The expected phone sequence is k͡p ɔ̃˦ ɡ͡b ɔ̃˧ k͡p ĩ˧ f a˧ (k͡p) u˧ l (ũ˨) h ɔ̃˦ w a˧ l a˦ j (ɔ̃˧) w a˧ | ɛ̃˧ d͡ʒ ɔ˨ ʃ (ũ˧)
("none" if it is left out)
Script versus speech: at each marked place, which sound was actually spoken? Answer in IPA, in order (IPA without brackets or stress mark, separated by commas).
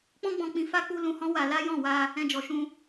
k͡p, ũ˧, ɔ̃˦˨, ũ˧